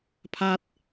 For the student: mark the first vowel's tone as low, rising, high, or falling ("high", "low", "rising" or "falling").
high